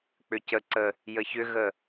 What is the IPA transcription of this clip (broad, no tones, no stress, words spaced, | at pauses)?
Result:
k͡pʏcəǀə | jəçʏɣə